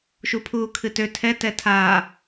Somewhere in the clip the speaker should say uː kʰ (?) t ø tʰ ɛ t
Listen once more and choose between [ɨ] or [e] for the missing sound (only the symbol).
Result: ɨ